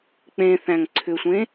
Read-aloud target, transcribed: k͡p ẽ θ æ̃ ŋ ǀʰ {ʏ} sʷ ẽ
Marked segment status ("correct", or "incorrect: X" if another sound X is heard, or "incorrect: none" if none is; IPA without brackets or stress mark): correct